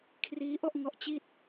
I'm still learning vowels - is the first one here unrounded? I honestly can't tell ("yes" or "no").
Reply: yes